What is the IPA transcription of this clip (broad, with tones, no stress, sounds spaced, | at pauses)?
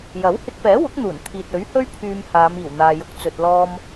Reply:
j ɐ˨˥ w h ɪ˧ k̚ p ɛː˨˥ w ʊ˨˥ k̚ n̪ uː˨˩ n t̪ʰ iː˨ t̚ ɵ˨˥ ɥ h ɵ˥ ɥ pʰ yː˧ m h aː˨˧ m iː˨˩ w n̪ aː˨ j ʊ˨ k̚ t͡s ɵ˨ t̚ l ɔː˧ m